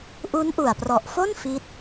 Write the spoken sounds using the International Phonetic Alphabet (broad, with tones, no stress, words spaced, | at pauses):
ʔu˦˥nʔu˨˩a̯prɔ˨˩ʔfo˥˩n fi˦˥t̚